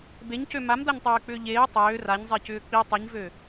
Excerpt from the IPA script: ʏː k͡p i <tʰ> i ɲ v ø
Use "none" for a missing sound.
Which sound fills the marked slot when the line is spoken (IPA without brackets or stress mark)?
tˤ